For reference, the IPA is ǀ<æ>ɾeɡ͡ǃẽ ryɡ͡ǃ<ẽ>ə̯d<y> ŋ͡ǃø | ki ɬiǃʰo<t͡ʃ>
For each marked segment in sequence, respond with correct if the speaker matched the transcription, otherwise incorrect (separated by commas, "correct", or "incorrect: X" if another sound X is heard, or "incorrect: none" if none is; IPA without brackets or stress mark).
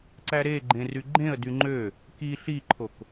correct, correct, correct, incorrect: k